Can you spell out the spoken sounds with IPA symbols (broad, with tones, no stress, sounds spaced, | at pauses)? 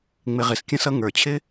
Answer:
ŋ͡m ɪ˨ ʁ ɪ˨ s kʲ ə̃˧ s ʌ˧ ŋ ə˞˨ t͡ɕʰ ɪ˦